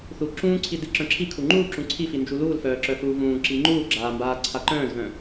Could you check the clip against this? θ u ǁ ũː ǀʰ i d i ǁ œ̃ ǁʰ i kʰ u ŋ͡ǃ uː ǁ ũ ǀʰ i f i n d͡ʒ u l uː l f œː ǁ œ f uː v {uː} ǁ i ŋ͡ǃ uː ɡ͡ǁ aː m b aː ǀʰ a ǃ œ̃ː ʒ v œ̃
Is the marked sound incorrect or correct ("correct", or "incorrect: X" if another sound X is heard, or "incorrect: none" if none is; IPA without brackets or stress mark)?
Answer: incorrect: ũː